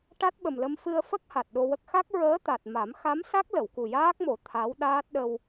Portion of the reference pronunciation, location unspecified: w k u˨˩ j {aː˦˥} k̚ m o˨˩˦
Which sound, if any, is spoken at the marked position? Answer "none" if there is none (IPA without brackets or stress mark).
aː˦˥